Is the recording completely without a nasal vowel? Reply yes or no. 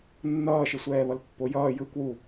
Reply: yes